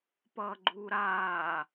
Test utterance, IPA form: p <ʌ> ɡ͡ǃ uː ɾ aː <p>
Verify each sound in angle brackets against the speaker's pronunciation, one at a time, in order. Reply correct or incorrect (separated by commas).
incorrect, incorrect